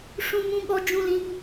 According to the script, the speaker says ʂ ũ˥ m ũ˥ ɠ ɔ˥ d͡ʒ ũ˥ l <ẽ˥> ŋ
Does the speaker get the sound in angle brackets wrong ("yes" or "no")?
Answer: yes